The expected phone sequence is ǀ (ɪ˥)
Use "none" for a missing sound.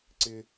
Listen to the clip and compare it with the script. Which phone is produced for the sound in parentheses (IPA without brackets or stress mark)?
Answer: ɪ˥